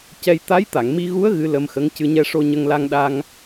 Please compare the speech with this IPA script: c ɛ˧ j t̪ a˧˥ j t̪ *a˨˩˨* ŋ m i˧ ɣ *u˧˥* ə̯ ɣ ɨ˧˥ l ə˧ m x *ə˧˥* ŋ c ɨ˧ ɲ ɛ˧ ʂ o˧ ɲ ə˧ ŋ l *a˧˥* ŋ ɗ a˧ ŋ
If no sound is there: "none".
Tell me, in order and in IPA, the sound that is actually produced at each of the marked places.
a˨˩˨, u˧˥, ə˧˥, a˧

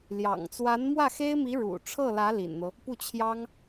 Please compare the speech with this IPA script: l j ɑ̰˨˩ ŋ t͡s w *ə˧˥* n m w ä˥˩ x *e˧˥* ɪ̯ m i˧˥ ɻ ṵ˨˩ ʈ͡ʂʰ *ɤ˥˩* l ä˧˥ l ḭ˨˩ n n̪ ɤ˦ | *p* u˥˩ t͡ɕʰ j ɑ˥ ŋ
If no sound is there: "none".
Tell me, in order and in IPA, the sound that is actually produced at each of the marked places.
a˧˥, e˥, ɤ˥˩, p

